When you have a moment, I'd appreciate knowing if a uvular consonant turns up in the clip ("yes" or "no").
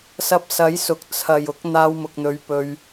no